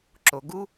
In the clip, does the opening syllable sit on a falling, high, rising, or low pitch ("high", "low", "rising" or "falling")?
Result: low